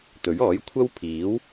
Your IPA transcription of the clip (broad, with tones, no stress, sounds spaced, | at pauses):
t̪ ɵ˨˥ ɥ ɔː˨˥ j kʷʰ ɐ˥ w pʰ iː˨˥ w